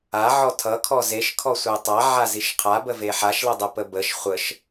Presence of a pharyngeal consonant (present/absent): present